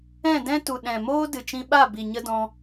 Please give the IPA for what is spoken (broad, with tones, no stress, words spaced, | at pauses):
ɛ̃˦˨dɛ̃˦tu˨ ɗɛ̃˨moː˦ dɨ˨t͡ʃĩ˧ɓa˦˨ bi˨ɲə˦dɔ̃˧